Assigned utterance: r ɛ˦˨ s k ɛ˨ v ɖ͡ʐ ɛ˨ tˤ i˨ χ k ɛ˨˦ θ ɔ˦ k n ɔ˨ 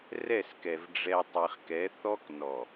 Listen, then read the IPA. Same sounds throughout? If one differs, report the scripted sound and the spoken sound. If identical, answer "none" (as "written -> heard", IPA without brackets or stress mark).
none